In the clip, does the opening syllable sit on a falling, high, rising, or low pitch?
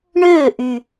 falling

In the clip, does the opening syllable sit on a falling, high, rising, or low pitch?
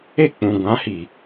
falling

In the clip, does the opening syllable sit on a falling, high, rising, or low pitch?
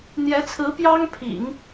rising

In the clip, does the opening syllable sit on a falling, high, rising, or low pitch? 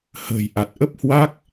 low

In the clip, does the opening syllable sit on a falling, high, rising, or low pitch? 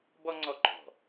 high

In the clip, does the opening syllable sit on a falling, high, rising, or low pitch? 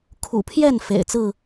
low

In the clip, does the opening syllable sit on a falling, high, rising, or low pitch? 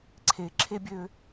rising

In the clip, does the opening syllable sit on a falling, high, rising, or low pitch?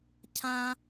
high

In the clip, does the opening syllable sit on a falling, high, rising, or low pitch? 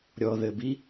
low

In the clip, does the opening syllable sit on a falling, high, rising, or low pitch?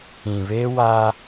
low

